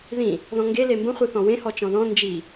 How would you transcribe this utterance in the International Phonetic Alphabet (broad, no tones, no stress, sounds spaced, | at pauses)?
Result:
ð ĩ | ð ɔ̃ ŋ ɡ e l e m b ə̃ χʷ ɨ θ ɔ̃ w ẽ h ɔ t͡ʃ ɔ̃ ð ɔ̃ n d͡ʒ i